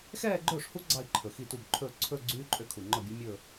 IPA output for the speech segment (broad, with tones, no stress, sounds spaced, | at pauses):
x ɛː˥˧ ɡ͡ǃ ɵː˥˩ ʂ h u˦˥ ɡ͡ǀ ɑ˥˧ i̯ ǃʰ ɵ˨˩ x i˥˩ t u˥˩ b ǃʰ ɵː˥˩ ǀʰ ɵ˥˧ ɡ͡ǀ yː˦˥ ǃʼ ø˥˩ kʰ u˨˩ ŋ͡ǃ ɔ˥˩ bʲ u˦˥ mʲ ɵː˥˧